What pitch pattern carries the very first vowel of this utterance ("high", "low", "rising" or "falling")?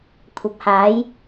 rising